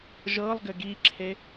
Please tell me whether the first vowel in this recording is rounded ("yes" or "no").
no